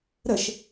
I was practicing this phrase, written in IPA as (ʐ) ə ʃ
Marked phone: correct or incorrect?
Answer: incorrect